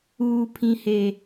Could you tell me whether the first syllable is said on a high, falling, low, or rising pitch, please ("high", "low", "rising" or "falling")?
low